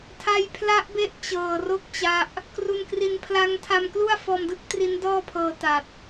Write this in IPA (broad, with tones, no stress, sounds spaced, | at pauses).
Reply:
tʰ a˧ j pʰ l a˦˥ ʔ b e˦˥ ʔ t͡ɕ ɤː˨˩ r o˥˩ k̚ t͡ɕ a˦˥ ʔ | k r u˧ n k r i˧ n pʰ l a˦˥ ŋ tʰ a˧ m k l u˥˩ a̯ f ɔː˧ m d ɯ˥˩ k̚ t r i˦˥ n d ɔː˥˩ pʰ ɤː˧ t a˨˩ t̚